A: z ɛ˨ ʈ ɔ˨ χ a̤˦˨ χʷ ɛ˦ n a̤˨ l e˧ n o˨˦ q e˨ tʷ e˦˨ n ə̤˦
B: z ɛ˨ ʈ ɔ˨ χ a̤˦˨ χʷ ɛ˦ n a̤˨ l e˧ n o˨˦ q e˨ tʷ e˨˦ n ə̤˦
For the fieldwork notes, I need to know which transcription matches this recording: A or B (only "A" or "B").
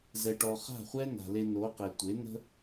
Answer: B